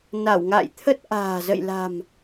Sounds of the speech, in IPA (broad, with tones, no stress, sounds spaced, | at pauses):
n a˧˩ w ŋ a̰ː˧˨ j t̪ʰ ə˦˥ t̚ ʔ a̤ː˨˩ z ə̰˧˨ j l a̤˨˩ m